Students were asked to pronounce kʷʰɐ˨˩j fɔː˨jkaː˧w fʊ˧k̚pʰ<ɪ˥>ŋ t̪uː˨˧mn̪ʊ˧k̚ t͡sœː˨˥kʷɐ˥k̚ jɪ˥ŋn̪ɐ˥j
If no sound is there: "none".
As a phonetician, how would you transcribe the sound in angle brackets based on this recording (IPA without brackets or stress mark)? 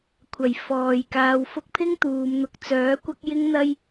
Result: ɪ˥